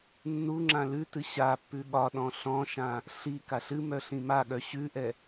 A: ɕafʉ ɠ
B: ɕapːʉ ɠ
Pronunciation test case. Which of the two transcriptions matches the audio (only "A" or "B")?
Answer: B